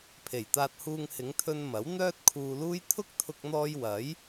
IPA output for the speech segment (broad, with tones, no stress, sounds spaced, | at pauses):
pʰ e˨˩ j t̪ aː˧ t̚ h uː˧ ŋ h ɪ˨˧ ŋ t̪ʰ ɵ˧ n m ɐ˨˥ w n̪ œː˥ t̚ kʰ uː˧ l uː˥ j t̪ʰ ʊ˥ k̚ t̪ʰ ʊ˧ k̚ n̪ ɔː˧ j w ɐ˨˥ j